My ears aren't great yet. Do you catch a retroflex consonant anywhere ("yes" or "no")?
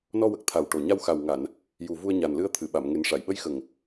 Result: yes